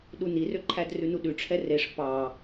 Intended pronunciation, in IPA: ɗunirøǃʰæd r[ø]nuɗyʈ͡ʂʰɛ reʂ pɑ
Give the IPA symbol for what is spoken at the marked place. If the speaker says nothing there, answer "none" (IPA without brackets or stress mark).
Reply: ʉ